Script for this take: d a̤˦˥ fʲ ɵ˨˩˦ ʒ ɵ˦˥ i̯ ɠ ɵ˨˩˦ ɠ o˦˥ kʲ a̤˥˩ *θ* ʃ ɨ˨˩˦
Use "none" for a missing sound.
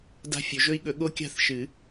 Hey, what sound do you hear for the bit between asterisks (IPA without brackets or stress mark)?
θ